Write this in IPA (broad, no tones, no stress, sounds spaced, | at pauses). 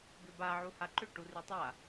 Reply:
ɡ ʏ b a ʕ u h a ǃ ʏ ʈ u r y tˤ a